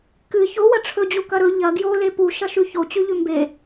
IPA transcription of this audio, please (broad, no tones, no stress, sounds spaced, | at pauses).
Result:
k ɨ ç o w ɐ ʈ͡ʂʰ ɵ d͡ʑ u k ɐ ɾ ɵ ʎ ɐ ɡ j o l e p u ʃ ɐ ʃ ʉ ç o t͡ɕ ʉ ʎ ʉ m b e